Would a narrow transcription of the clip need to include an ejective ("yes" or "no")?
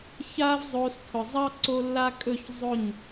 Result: yes